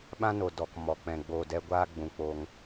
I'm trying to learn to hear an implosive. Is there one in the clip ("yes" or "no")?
yes